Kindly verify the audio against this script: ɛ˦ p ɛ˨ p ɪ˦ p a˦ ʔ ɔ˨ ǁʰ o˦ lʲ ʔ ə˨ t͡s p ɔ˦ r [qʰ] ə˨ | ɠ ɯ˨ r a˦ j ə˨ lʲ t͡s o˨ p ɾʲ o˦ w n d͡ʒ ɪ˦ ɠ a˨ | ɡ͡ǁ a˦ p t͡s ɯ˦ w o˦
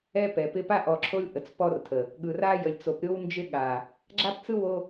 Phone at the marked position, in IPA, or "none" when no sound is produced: tʰ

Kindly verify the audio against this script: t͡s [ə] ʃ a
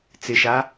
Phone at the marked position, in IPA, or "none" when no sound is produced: ɪ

